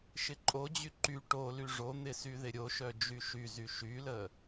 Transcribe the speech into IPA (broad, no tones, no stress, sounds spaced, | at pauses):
ʃ ɪ ǃʼ o d͡ʑ y ǃ y ʈ o l y ʐ o n̪ ɪ s y ð ɪ ɾʲ o ʃ œ d͡ʒ y ʃ y z y ʃ y l ə